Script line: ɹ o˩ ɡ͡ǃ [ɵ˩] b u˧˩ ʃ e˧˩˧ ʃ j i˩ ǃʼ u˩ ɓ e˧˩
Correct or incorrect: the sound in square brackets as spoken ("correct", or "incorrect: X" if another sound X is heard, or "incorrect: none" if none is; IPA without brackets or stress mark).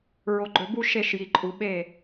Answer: correct